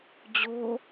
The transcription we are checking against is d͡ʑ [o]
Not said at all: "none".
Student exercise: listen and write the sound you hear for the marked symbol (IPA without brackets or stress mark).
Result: o